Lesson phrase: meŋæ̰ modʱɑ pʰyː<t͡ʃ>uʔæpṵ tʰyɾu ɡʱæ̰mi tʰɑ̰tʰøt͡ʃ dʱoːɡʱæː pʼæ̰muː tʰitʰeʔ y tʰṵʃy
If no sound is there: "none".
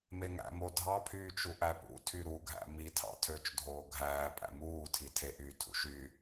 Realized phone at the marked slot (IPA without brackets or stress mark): t͡ʃ